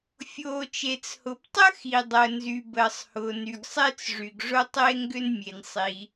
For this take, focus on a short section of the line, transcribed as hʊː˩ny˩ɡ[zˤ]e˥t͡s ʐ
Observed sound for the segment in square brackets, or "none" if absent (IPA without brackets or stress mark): sˤ